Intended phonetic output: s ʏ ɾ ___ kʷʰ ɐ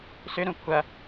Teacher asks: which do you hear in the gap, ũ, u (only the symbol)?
ũ